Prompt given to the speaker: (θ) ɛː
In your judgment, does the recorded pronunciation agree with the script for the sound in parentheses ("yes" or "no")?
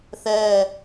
yes